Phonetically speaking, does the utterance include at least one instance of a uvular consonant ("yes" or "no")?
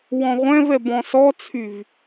yes